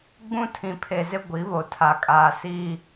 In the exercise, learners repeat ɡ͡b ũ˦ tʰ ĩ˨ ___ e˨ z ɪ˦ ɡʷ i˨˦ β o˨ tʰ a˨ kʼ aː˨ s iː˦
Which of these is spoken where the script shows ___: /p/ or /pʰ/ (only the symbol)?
pʰ